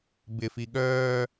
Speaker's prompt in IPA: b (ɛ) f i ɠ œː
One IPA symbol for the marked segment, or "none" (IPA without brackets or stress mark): ɪ